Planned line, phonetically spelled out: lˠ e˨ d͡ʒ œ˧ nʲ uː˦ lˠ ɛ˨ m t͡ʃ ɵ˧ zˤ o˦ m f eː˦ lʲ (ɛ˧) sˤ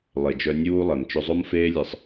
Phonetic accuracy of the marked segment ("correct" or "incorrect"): incorrect